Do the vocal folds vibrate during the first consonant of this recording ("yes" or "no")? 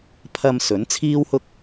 no